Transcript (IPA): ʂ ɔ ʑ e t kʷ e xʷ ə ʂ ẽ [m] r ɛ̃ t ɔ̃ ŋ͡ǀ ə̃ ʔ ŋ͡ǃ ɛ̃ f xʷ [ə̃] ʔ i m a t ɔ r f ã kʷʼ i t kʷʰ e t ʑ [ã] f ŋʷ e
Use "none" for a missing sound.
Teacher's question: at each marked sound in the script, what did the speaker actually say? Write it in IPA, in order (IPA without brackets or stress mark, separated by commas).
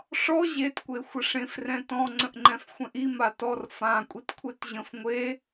f, ɛ̃, ə̃